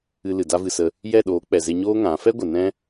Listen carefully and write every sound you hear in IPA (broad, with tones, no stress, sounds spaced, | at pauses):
ɨ˧ l ɨ˨ d a˦ v ɨ˧ s ə˧ | j ɛ˦˨ ɗ oː˨˦ k͡p ɛ˨ z e˧ ɲ oː˦ ŋ ã˨˦ f ɛ˦ ɡʷ ə˨ n ɛ̃˦